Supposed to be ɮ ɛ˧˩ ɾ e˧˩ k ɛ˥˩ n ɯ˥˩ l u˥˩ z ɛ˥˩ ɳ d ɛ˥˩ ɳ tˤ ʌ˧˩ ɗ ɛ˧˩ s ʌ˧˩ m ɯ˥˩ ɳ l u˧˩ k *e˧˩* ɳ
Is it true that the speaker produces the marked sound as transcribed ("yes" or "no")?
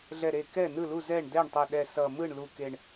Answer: yes